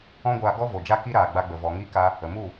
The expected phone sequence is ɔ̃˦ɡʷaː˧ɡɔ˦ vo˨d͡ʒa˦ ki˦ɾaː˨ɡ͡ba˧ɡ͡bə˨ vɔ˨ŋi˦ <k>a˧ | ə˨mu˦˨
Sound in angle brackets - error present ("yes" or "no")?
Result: no